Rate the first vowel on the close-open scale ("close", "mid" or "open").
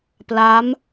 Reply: open